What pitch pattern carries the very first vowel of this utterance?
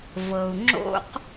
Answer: low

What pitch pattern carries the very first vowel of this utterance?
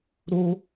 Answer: high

